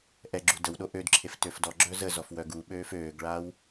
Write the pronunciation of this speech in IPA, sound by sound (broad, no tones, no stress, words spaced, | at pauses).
ʔɛɡ͡ǁu dəwɗo ʔødǁʰef tøfdɔɡ͡ǁœ zəzɔf wœɡuɓøːf øːɡɭaw